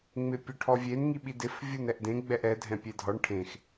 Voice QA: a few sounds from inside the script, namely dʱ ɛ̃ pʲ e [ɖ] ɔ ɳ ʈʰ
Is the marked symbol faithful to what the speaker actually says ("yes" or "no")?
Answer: no